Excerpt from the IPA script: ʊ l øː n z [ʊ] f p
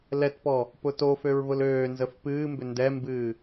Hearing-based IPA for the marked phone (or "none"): ə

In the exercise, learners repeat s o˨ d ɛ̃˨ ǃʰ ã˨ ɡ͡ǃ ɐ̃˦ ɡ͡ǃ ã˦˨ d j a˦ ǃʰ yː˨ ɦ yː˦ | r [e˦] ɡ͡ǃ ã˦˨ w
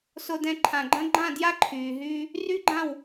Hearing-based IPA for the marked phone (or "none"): y˦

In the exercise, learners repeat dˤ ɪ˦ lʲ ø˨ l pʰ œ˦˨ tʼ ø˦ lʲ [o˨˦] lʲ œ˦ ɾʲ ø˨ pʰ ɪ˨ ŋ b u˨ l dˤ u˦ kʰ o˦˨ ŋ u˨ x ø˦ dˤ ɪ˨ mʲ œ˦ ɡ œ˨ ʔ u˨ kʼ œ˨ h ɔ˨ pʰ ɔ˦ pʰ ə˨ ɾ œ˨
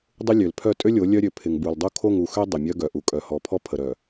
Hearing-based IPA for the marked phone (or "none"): o˨˦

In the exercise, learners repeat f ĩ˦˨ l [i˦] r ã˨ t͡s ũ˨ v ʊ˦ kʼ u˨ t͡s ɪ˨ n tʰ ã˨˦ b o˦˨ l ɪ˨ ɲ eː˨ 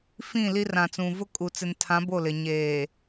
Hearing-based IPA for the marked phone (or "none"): i˦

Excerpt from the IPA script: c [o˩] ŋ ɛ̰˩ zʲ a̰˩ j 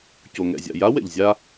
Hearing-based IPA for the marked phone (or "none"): o˩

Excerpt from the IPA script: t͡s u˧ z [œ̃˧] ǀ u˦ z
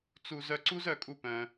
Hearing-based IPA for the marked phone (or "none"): œ˧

